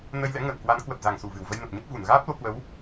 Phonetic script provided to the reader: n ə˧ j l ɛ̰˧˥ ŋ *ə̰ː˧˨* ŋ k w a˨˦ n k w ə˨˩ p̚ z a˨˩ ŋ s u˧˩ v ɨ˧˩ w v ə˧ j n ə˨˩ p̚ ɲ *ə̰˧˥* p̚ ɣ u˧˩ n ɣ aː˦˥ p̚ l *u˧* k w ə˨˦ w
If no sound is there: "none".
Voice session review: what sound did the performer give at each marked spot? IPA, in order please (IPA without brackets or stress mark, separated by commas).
ə̰ː˧˨, ə˦˥, o˧